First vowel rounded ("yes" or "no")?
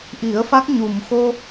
no